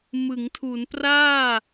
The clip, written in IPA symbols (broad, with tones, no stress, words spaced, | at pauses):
mɯ˩˦ŋtʰu˩˦npraː˥˩